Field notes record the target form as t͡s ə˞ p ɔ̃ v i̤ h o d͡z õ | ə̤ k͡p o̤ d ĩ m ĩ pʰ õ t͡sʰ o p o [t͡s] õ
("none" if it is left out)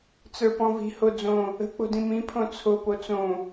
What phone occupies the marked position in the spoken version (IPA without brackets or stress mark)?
t͡s